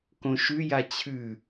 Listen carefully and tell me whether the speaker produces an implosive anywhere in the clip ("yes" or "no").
no